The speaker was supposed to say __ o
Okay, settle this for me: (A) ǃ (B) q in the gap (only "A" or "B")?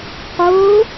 B